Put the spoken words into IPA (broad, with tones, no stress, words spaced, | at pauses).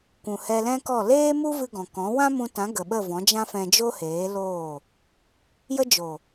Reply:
kʷũ˨hɛ˧lɛ̃˦kɔ˦˨ leː˦mu˦vɨ˧ ɡɔ̃˨kɔ̃˨˦ wã˦mũ˧tã˨˦ ɡə˨ɓə˦˨vɔ̃˨˦ d͡ʒã˦fɛ̃˧ d͡ʒo˦heː˨˦ loː˦˨ | jə˧d͡ʒo˨